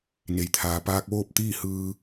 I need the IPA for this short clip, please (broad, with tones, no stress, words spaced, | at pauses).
ne˩jt̪ʰaː˩ paː˧k̚ʋoː˥˨p̚t̪iː˥˨ hɯː˧